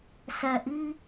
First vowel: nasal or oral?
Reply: oral